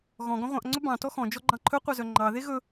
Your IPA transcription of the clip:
ɣɔ̃ ɡɔ̃ʁʷɑ̃ʔŋ͡ǀɵ bɑ̃ tɔxɔ̃ d͡ʒɔɡ͡ǃɑ̃ǃʰɵ qʷɑzœŋ͡ǃɑ ðeɣɵ

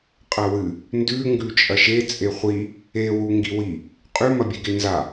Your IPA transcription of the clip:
qʼɐwɨ | ndʉ ŋɡʉt͡ʃʼɐʃe t͡sʼeχʷi | e wuŋɡiwi | qʼʉ mɐbʲeɡenza

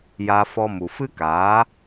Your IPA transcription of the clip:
ja˧fɔ˧ mu˨fɨ˦kaː˨˦

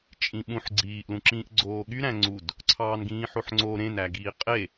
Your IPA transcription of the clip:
t͡ʃʼĩɓũħ ɡ͡ǀiːʔlũǁĩːʔ ɡ͡ǀoːɠy ɾæ̃ŋ͡ǀud | ǀʰɑːnɡĩːħoħŋ͡ǀo ɾẽnæɡiː qʼe

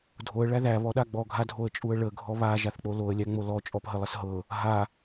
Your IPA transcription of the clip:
dʱoə̯ɭæ ðæβɔɗa ɡ͡bɔɡʱadʱoə̯t͡ʃʼuə̯ ɭəɡʱɔ βaʒaθk͡po loə̯lʲæŋ͡mo lɔt͡ʃʼɔpɦəlˠəs ɦɤ | ɦa

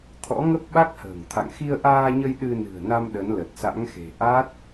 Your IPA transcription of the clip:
t̪ʰɔ̰˧˥ŋə˦˥p̚ɓa˦˥k̚hə̤ː˨˩ŋ t̪ʰa̰˧˨ŋxi˧ə̯ʔaː˧ɲə˧j ɗɨ˧nɨ̤˨˩ə̯na˧m ɗə˨˦nlə˨˩t̚sa̰˧˥ŋxe̤˨˩ ʔa˦˥t̚

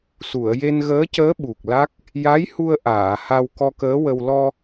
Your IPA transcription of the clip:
su˨˩˨ə̯je˧nɣəː˧˥cəː˧˥ ɓu˨˩k̚la˦˥k̚ | ja˧˥jhu˧ə̯ ʔaː˨˩˨ ha˧wkɔ˧kəː˧˥wə˧w lɔ˧

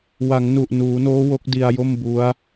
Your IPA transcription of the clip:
wa˩˦ŋnu˨˩ʔnuː˩˦noː˦˥ wo˦˥k̚di˧a̯jo˥˩m bu˦˥a̯

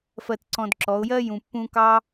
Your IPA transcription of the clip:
fɜ˧tǀɔ̃˧dǁɔ˨˦ʊ̯ jɜ˦jũ˨pːũ˧kɑ˦

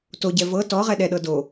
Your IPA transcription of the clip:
toɟɛ vɤ tɔʁɛ ɗɛɗɤ do

